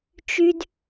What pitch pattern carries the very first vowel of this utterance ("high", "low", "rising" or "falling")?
low